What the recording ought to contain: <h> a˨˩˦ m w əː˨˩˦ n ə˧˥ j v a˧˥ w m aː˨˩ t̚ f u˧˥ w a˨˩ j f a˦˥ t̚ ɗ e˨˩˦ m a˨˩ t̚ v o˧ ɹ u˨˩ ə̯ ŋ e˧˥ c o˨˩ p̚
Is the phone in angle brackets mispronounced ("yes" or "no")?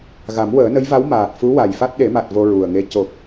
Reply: yes